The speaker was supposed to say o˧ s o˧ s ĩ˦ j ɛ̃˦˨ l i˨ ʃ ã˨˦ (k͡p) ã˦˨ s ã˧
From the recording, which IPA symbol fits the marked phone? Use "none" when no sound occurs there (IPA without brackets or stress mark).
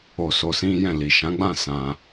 ɡ͡b